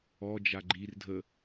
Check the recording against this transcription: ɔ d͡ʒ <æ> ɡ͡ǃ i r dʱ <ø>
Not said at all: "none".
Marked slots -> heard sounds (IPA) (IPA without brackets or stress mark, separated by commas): a, ə